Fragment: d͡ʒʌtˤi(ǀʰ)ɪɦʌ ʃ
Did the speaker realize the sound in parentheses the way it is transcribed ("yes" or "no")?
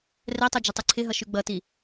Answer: yes